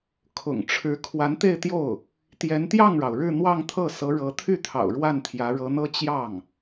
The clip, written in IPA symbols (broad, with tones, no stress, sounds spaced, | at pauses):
kʰ ʊ̰˨˩ ŋ ʈ͡ʂʰ ɻ̩˧˥ kʰ w a˧˥ n t̪ e˥˧ ɪ̯ t̪ j o˥˩ ʊ̯ | t̪ j ɛ˧˥ n t̪ j ɑ˥˩ ŋ ɻ ɑ˩ ʊ̯ ɻ ɻ̩˥˧ n̪ w ɑ˥˧ ŋ t̪ʰ ɤ˥˩ s ɤ˧˥ ɻ ɤ˧˥ t̪ʰ y˥˩ t̪ʰ ɑ̰˨˩ ʊ̯ ɻ w a˥˩ n t̪ʰ j ä˧˥ ɻ ɤ˧˥ n̪ ɤ˥ t͡ɕ j ɑ˥˩ ŋ